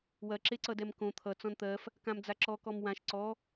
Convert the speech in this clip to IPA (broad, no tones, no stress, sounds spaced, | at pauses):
w ɐ ǁ e ǀ ʌ d ɛ m k õ t̪ʰ ʌ t͡s ɔ̃ n t̪ ɜ f | k ã m d͡z a ǁ ɔ k ɔ m w ã ʃ ǀ ɔ